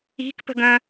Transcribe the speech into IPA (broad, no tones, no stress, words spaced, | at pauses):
i̤kpə̤ɡ ə̃